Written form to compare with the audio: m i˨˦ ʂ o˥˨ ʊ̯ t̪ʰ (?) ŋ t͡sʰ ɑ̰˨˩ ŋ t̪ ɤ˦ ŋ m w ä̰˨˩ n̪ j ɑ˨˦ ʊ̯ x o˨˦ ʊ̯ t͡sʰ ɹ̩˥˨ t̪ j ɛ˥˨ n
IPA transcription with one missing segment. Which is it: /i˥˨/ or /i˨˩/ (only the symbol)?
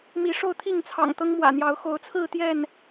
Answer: i˥˨